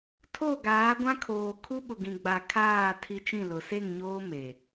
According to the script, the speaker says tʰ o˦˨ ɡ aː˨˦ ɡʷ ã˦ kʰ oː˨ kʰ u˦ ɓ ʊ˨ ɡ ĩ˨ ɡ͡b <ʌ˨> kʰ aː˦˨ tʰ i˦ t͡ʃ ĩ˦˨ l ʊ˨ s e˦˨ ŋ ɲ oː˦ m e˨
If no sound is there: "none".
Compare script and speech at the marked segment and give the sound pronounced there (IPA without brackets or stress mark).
a˨